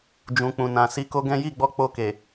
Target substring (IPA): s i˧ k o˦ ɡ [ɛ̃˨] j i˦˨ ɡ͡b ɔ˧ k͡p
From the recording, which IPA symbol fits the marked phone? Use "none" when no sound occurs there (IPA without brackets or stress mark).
ɛ̃˦